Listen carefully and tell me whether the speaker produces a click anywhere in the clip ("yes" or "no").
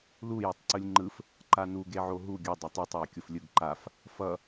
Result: yes